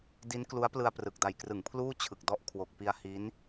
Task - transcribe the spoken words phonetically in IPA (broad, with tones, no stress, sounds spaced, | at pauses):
d i˦˥ n k l u˦˥ a̯ p l ɯ˧ a̯ p r ɯ˨˩ k̚ d a˨˩ j k r ɯ˩˦ ŋ pʰ l uː˥˩ t͡ɕʰ ɯ˨˩ k̚ d ɔ˥˩ ʔ kʰ w o˨˩ k̚ p i˧ a̯ h i˦˥ n